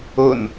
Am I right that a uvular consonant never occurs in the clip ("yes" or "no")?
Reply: yes